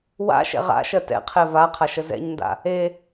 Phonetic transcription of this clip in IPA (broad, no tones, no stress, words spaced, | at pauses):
wa̰ ʃɛ̰ʁa̰ʃɜ tɛ̰qʰɛ va qʰaʃəzɛ̰ɲnda̰ | e